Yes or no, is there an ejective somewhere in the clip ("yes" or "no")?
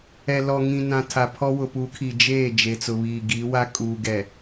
yes